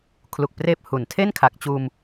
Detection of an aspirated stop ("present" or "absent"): present